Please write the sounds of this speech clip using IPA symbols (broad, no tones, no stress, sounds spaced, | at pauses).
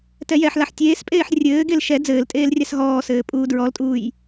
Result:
t ɛ j ɛ ħ l a ħ tʲ eː s pʼ eː ħ rʲ ɘː ɡ e l ʃ ɛ d͡z ɘː l tʼ eː l rʲ a s ɦ ɔː s ɘː pʼ uː d ɹ ɔ l tʼ uː j